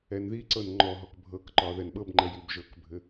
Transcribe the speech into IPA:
ɛnðiǀɤn ŋ͡ǃɔɦɔk bʱɤkǃɒ ðɛnɓɤbŋ͡ǃɛ jibʒɤkbʱɘ

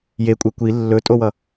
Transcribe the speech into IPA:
jekʷʼe kʷi lːɵtʼowʌ

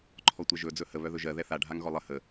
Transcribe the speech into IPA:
ǃʰɔtʷɛʒɵ d͡zɵhə βœðɵʒɜ ðɛθa ɖʱaŋɣɔlˠə hə

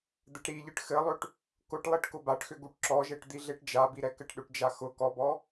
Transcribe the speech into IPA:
d̪ɘʈɾiʎɨʈ xɘlˠʏʈ | kʊʈlˠiʈ kʊbaʈxʏ ɡuʈǁɔʒɛʈ d̪iɮeʈd͡ʒabi ɾɛkɘʈɗʏʈd͡ʒa xʊ kɔbɔ

